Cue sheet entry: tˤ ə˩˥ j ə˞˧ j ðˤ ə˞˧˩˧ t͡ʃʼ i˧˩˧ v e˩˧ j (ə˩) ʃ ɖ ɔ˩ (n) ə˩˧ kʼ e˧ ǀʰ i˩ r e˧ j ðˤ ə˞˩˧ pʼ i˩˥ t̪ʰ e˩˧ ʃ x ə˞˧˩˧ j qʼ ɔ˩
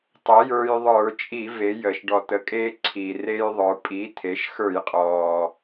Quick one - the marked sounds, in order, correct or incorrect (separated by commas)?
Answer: correct, incorrect